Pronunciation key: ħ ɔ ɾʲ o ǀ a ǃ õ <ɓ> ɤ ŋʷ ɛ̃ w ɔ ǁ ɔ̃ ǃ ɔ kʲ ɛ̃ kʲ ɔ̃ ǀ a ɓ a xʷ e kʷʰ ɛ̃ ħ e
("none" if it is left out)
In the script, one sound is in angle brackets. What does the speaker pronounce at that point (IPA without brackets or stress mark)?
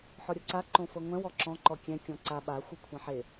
f